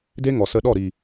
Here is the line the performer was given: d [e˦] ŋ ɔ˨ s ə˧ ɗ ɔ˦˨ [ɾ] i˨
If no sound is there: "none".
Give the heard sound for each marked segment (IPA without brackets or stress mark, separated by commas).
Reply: e˦, ɾ